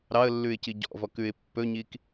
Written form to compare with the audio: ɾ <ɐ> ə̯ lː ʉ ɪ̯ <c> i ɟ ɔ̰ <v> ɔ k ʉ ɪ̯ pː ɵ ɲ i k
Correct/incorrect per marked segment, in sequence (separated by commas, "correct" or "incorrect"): incorrect, correct, correct